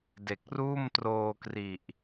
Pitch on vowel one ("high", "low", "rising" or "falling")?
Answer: low